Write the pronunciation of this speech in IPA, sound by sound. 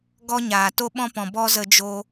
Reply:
ɡ ɔ˦ ɲ aː˨ t o˦ ɓ ɔ̃˦ p ɔ̃˨ b ɔ˦ z ə˧ d͡ʒ o˧

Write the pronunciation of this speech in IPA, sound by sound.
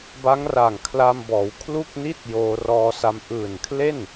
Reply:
b a˦˥ ŋ r aː˨˩ ŋ kʰ l a˧ m b ɔː˩˦ w kʰ l u˥˩ k̚ n i˥˩ t̚ j oː˧ r ɔː˧ s a˦˥ m ʔ ɯː˨˩ n kʰ l e˥˩ n

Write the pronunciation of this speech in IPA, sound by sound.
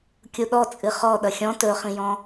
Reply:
kʲ u ɗ ɔ t͡sʼ ɨ χ ɔ ɗ ʌ xʲ ɔ̃ t ɵ χ ĩ j ɔ̃

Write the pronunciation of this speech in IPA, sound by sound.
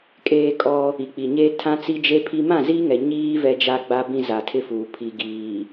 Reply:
kʼ eː˦ kʼ ɔ˦ | i˨ k͡p i˨ ɲ eː˦ tʰ ã˦ t͡s i˦ d͡ʒ e˦ pʰ i˦ m ã˦˨ z iː˦ ŋ ɛ˨ ɲ iː˦ v ɛ˦ d͡ʒ a˦ ɡ͡b a˦ b ĩ˦ z a˨ tʰ ɪ˦ f uː˨ pʰ i˨ ɡ iː˨

